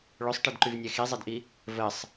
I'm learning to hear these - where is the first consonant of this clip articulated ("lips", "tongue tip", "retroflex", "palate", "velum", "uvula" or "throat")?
retroflex